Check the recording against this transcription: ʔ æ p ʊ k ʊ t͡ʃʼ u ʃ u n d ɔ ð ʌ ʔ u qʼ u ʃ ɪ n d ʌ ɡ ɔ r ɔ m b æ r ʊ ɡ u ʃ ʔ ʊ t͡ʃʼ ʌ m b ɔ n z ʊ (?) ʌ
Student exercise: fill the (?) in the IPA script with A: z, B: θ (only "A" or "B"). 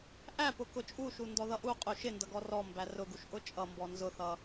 B